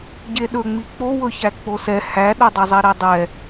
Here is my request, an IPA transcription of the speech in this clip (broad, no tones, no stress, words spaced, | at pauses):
ɟeɗɵŋ͡mi k͡powɵ çæk͡posɛ hæɗodˤɵzˤi ɾedˤɛ